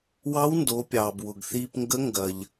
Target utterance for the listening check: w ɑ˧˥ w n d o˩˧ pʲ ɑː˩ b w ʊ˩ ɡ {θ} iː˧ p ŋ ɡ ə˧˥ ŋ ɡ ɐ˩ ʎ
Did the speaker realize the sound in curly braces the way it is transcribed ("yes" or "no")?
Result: yes